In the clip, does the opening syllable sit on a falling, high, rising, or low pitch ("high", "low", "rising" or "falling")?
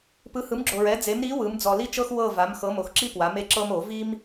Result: rising